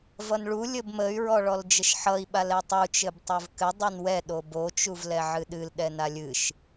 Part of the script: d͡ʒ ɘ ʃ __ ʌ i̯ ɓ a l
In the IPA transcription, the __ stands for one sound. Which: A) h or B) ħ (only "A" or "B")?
B